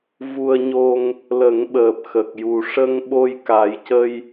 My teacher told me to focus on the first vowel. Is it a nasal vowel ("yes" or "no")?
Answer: no